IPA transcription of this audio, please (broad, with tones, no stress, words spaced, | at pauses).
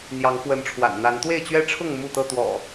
n̪jɑ˨˦ŋfwə˨˦nʈ͡ʂʰwa̰˨˩nn̪a˨˦n t̪we˥˨ɪ̯t͡ɕɥɛ˦ʈ͡ʂʰʊ˥˨ŋ mu˥˨t̪ɤ˥˨t̪wɔ̰˨˩